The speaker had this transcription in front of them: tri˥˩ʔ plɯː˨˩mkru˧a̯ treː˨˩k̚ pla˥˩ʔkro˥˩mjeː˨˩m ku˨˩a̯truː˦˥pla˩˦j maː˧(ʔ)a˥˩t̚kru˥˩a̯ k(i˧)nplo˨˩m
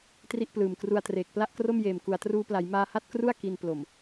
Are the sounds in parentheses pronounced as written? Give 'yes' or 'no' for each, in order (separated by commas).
no, yes